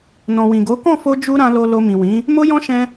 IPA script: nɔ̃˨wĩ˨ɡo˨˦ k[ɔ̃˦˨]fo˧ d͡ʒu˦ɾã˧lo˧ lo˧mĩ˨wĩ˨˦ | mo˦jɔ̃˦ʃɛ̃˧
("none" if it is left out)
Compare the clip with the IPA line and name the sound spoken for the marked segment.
ɔ̃˦˨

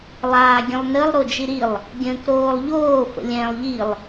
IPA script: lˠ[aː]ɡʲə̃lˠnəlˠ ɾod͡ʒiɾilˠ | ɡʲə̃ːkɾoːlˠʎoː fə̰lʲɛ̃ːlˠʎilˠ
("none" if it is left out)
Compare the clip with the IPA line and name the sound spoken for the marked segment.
aː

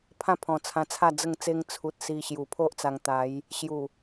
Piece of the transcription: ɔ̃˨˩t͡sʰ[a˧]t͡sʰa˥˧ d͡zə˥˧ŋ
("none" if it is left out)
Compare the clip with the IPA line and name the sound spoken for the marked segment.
ã˧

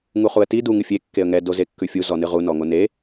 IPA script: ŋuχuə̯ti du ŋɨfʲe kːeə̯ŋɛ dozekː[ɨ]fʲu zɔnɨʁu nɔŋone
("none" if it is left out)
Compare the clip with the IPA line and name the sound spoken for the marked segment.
ʉ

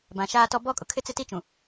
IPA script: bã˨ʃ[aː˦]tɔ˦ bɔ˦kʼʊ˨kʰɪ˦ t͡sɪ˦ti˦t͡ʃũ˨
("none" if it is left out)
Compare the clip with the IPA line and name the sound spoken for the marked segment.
aː˦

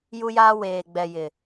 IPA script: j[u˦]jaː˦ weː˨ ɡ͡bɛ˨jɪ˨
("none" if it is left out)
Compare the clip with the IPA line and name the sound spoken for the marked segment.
u˦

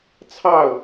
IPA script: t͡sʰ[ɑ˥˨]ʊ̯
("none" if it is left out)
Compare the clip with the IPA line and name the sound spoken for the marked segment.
ɑ˥˨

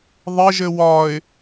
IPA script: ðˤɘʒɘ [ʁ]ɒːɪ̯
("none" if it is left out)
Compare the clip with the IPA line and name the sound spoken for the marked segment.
w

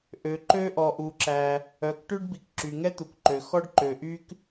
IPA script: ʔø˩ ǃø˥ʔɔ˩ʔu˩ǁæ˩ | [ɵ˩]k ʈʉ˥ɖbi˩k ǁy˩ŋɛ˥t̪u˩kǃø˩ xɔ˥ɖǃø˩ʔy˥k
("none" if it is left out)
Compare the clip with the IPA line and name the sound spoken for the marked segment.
œ˩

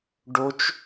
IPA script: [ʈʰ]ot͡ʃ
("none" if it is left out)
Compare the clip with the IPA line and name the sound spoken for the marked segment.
ɖ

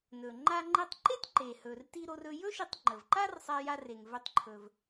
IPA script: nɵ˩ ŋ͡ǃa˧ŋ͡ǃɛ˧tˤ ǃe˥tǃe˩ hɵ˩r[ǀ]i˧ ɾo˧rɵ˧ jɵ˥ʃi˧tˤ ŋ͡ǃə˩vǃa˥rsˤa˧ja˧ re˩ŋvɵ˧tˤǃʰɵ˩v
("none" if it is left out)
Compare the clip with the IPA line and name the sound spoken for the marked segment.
t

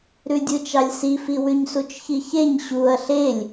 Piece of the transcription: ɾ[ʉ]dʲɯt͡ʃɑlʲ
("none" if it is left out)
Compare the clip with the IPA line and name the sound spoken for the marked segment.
ʉ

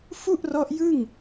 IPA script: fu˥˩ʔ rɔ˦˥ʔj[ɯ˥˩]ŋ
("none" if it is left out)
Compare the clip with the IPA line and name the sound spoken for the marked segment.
ɯ˥˩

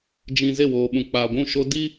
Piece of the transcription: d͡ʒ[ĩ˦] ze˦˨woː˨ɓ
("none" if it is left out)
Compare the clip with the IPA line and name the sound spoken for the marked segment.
ĩ˨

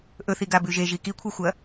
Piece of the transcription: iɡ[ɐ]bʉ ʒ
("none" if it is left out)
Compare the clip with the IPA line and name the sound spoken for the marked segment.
a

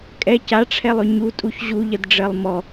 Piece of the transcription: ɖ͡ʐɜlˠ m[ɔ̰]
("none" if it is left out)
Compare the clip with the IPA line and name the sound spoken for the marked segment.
ɔ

